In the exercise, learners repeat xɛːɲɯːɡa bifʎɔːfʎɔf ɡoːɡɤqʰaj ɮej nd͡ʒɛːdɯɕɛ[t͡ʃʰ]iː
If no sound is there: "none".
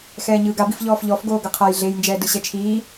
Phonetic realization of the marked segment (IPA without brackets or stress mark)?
t͡ʃʰ